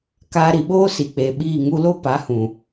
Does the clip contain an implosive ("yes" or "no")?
yes